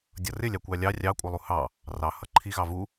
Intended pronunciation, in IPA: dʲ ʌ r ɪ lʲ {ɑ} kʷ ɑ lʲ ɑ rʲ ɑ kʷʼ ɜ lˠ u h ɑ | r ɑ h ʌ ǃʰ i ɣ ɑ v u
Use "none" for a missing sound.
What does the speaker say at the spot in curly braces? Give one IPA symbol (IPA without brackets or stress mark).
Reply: ɑ